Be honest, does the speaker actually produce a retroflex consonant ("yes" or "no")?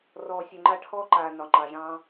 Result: yes